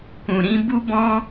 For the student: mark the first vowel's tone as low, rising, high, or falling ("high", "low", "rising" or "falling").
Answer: low